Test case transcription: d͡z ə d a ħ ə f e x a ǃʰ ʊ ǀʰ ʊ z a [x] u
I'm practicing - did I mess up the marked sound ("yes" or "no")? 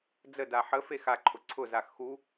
no